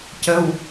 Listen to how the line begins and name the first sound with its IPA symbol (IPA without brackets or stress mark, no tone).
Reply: c